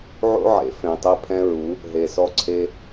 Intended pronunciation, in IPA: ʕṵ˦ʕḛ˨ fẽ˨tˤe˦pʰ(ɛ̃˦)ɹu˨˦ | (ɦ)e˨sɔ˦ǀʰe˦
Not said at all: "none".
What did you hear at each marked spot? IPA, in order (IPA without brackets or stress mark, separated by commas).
ɛ̃˦, ɦ